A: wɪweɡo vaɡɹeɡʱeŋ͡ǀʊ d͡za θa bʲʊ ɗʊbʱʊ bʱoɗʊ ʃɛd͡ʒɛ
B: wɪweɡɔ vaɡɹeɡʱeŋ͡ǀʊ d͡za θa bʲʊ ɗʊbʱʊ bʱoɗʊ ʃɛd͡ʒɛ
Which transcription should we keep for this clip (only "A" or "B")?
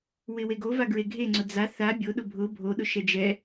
A